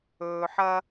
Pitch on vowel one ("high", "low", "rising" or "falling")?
low